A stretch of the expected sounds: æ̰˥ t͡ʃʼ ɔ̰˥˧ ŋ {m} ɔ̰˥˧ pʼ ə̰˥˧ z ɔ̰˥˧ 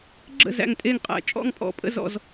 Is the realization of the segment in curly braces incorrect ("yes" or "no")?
yes